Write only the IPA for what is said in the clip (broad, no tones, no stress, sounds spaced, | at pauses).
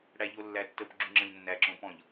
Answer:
ɽ æ ʎ o lː æ tː ə p ɡ͡ǁ u ŋ͡ǁ ə̃ ʎ nː æ ǁ õ p ɔ̃ ʎ